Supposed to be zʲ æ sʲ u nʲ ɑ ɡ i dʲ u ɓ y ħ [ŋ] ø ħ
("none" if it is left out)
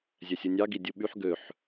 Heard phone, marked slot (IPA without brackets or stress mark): ɡ